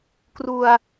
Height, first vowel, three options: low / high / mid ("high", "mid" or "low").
high